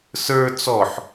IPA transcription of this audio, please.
sə˞ t͡sɔħ

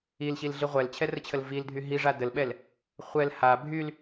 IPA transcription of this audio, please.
ilɕilɮi ʁʷɛlt͡ɕʰɛrət͡ɕʰəl vildʱy ɦiʐa dəlɓɛl | χʷɛl ha bʱyl

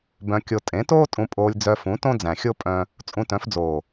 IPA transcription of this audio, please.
bœ̃˧kʲo˧ tʼẽ˨˦toː˦ tʼũ˧pʼoː˧lʲ d͡zœ˧fũ˨˦ tõ˦d͡zæ̃˨xʲo˦ pʼœ̃˦ | t͡sʼũ˧tœ̃˨˦fd͡zoː˨

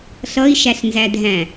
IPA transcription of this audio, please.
ɬʌi̯ʃæɬnzædʱæ̃

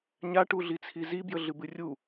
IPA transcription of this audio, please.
ɲaʈuɮit͡sʰi zibjəɮɨbɨ rʲu

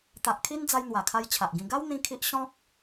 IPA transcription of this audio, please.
t̪a˨ʔkʰi˦nd͡za˧j n̪wa˨˩kʰa˧j t͡ɕʰa˨ʔɡĩ˧ ɡa˦w n̪ĩ˦ kʰi˦ʔ ɕɔ̃˦k̚

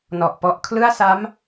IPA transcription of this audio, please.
nɔ˨˩ʔpɔ˦˥ʔ kʰlɯ˥˩a̯sa˦˥m

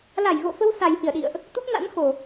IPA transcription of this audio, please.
la˧˩jɣo̰˧˨fə˧w sa˨˩jhi˧˩ə̯ɗḭ˧˨ə̯ʔ | t̪u˦˥p̚na̰˧˥nxo˨˩

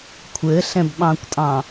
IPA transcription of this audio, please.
kʷʰɘɬɛ̃bɓɑ̃kʷtʼɑ̃

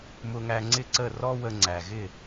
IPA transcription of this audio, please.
mʊ˧ŋæ˧ŋ͡ǀɪ˥˩ǀə˥˩ rɔ˥wə˧ ŋ͡ǀæ˩ɣɪ˥˩

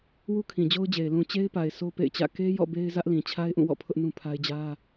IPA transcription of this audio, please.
wu˦kʰĩ˨d͡ʑo˦ʊ̯d͡ʑe˨ɪ̯ lũ˨t͡ɕe˦ɪ̯pa˨ɪ̯ sʰo˦pḛ˦˨ɪ̯t͡ɕä̰˦˨ ke˦jɔ̰˦˨ be˦ɪ̯zä˦ʔlĩ˨ t͡ɕʰa˦ɪ̯ʔũ˦˨wɔ̰˦˨ pʰʊ˦ʔnũ˦pʰa˦ɪ̯ d͡ʑä˦

